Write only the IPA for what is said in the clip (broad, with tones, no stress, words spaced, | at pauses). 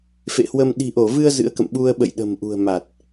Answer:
fḛ˧˨hwə˧m ɗi̤˨˩ʔo˧˩vɨ˧ə̯ zɨ̰˧˥ə̯kə̰˧˨m ɓu˧ə̯ ɓə̰˧˨jɗə̤˨˩mʔṳ˨˩ə̯ma˨˩t̚